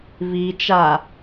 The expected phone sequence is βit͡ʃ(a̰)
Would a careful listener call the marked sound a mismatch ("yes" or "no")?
yes